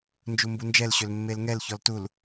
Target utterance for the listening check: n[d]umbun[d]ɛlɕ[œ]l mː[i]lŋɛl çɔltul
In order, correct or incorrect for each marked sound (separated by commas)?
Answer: incorrect, incorrect, incorrect, incorrect